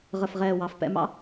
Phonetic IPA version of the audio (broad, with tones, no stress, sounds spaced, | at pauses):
ʁ ə˧˩ f ʁ ɛː˧˩ w ɑ˩˧ f p ɛ̰˧ m ɑ̰˥